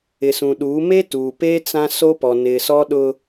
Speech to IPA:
ɪ˨ s ũ˨ ɗ uː˨˦ m e˦ t uː˨ p eː˦ t͡s ã˦ s o˦ p ɔ˨ n ɪ˨ s ɔ˦ ɗ ʊ˦

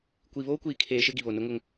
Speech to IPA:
kʷ i˨ β oː˦ kʷ iː˨ kʰ eː˨ ʃ ɪ˦ ɡ i˨ β o˨ n ʊ˦ ŋ ʊ˦ ŋ

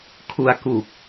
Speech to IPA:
kʰ u˧ a̯ k u˨˩ k̚

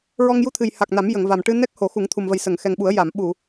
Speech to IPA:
ɹ ɔ˧ ŋ j u˧ t̪ʰ ɨ˨˩ j h a˨˩ k̚ n a˨˩˦ m j ə˨˩˨ ŋ v a˨˩ m ʈ ɨ˧ n ɛ˦˥ k̚ h o˨˩˦ x u˨˩˦ ŋ t̪ʰ u˨˩ m v ə˨˩ j s ə˨˩˨ ŋ x ɛ˨˩ ŋ ɓ u˨˩˦ ə̯ j a˨˩˨ m ɓ u˨˩˨

